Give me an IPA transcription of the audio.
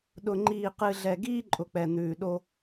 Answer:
ɗ ʊ˨ ŋ͡ǃ iː˨ q ɨ˨ ɮ ɛ˨ ɡ iː˦ ǃʼ ʊ˨ k͡p ɛ˨ n̪ ʉː˨ ɗ o˦

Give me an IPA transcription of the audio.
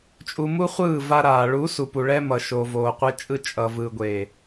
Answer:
t͡ʃʼ u˧ m u˦ χʷ ɯː˦˨ v a˧ ɾ aː˨ ɭ u˨˦ s u˨ p u˨ ɭ ɛ˧ m ʌ˨ ʃ o˨ v oː˨ qʷ ɛ˧ t͡ʃʼ ɯ˧ t͡ʃʼ ʌ˨ v ɯː˨ ɡʷ eː˨

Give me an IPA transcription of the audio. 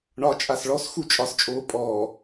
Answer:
ɳ ɒ t͡ʃʼ a s ɭ ɔ s x u t͡ʃʼ ɒ s t͡ʃʼ oː pʼ ɔː

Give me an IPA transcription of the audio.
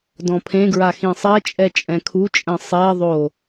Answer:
d ɔ̃ pʰ ẽ ɡ ɹ a x ĩ sˤ ɛ t͡ʃʼ ɛ t͡ʃʼ ɛ̃ kʰ u t͡ʃʼ ɛ̃ sˤ e ðˤ o

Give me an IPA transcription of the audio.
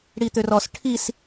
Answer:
ɽ i t̪ ø r ɔ s ʈʰ i s

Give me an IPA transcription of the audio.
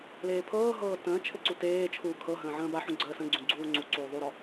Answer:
l eː pʰ ɤː ɦ ɤː t ə̃ː t͡ʃʰ ɘ ǀ u t eː t͡ʃʰ uː kʰ ɤ ɦ ə̃ː ʕ ə̃ː b a ħ ũ ɡ͡ǀ əː s ə̃ ɡ͡ǀ ũ ɡ͡ǀ uː ŋ͡ǀ u ǀ uː ðˤ u ɾ ɔ

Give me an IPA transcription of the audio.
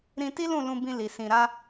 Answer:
ɾ ĩ˧ t i˦ l ũ˦˨ l ũ˧ b ĩ˧ l i˨ s ĩ˨ ɾ a˧

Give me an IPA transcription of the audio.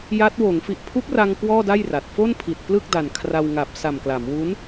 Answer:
j a˦˥ t̚ w oː˩˦ ŋ f i˨˩ ʔ pʰ u˦˥ k̚ r a˧ ŋ k w ɔː˥˩ d a˥˩ j r a˨˩ t̚ f o˥˩ n pʰ i˨˩ t̚ p l ɯ˥˩ k̚ d a˨˩ n kʰ r a˧ w ŋ a˨˩ p̚ s a˨˩ m k l a˩˦ m w u˦˥ n

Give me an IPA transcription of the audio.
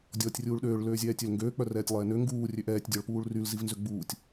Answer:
dʲ ɔː tʲ rʲ uː ɭ ɗ øː ɭ l øː zʲ ɛː tʲ ø l ŋ ɡ øː k͡p œ r ɛː tʲ lˠ ɛː n ø ŋ ɡ uː rʲ ø ʔ ɛː tʲ dʲ ɔ ɭ p uː ɭ r y l z i v n z ø ɡ͡b uː tʲ

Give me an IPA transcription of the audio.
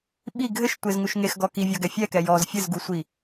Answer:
ɓ i ɡʱ ɘ ʃ tʷ e z ŋ u ʃ ŋ e x ɡ ɔ k i vʲ ɒ ɡ ɛ fʲ ɛ k ɛ j ɔ z fʲ ɘ z ɡ u sʷ i

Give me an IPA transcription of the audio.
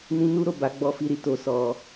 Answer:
n ĩ˦ n u˦ ɾ o˦˨ b a˨˦ ɡ͡b ɔ˧ f i˧ ɾ i˧ t o˧ s ɔ˧

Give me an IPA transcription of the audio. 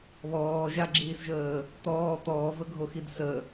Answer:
β ɔː ʒ a ɡ͡ǁ iː s ʒ əː | t̪ ɔː t̪ ɔː v ə ɡʱ o x i d s ə

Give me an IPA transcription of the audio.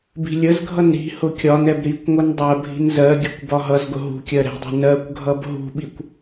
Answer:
b i̤ lʲ ə z ɡʱ ʌ n ɾ i̤ h ʊ kʲ ɒ n ɛ b ɾ i kʷ ŋʷ ʌ n dˤ ɜ bʱ i̤ n z ɜ ɡʲ ʌ kʷ b ɒ ɦ ʌ z ɡ ʊ ɦ ṳ kʲ ɜ ɾ ɛ̤ dˤ ɛ̤ n ɜ kʷ ɡʱ ʌ b ɦ ṳ ɓ i kʷ

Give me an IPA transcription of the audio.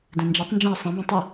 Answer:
d ɛ̃ n d͡ʒ ɛ tˤ n d͡ʒ ɛ̃ ə̯ sˤ ɛ̃ b ẽ tˤ i

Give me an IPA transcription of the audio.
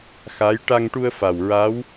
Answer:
x a˧˥ j ʈ a˧ ŋ ʈ u˧ ə̯ f a˨˩ w ɹ a˧˥ w

